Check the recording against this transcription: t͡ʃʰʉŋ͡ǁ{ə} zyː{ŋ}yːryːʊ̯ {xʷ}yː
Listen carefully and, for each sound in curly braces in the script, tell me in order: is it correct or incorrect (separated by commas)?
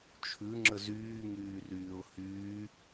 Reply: correct, correct, incorrect